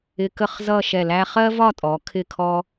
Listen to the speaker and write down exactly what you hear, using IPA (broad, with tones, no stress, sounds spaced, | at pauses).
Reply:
ɪ˧ k ə˥˧ χ z ʌ˥˧ ʃ ɛ˧˩ l æ˥ χ ɜ˥ v ɒ˥˧ tʼ ɔ˩˧ kʰ ɪ˥˧ kʰ ɔ˥